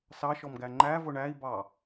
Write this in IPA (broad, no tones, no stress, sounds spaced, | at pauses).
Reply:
s ɑ ʃ ɔ m ɡ æ ŋ͡ǃ æ v ʊ ɳ æ i̯ b ɑ